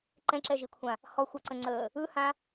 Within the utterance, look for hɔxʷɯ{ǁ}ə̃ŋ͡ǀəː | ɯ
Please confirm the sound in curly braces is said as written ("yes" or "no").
no